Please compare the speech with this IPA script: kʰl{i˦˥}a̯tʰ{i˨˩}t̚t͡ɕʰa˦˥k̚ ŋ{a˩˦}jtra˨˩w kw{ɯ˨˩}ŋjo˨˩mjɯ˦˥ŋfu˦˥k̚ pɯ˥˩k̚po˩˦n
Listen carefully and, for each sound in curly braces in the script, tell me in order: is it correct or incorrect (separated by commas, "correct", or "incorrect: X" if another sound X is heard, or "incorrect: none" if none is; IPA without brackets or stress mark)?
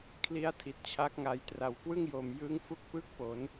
correct, correct, incorrect: a˨˩, incorrect: ɯ˥˩